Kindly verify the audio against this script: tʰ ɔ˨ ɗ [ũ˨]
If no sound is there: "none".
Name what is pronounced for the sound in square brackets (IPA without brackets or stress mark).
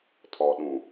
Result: ũ˨